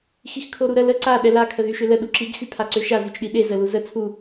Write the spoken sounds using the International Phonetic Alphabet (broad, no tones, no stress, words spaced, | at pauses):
xixkʰoɾuɾə lə ǀa ɗɛla kʰəðyʃølə ɗuǁiɡ xypʰaǀøʃa zyt͡ʃɗiɗe zəluzə t͡sʰu